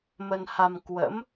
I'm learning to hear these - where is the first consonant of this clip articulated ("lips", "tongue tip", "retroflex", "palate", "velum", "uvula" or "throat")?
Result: lips